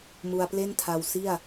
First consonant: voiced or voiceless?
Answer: voiced